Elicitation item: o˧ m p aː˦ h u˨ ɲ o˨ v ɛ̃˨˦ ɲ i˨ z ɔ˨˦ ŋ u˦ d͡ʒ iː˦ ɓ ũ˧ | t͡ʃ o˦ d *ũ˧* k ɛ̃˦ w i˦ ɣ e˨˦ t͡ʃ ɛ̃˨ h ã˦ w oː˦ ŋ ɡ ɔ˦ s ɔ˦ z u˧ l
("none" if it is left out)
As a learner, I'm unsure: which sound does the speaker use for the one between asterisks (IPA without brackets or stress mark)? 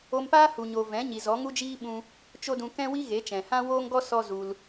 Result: ũ˧